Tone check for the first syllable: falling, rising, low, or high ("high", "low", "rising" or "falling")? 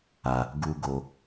low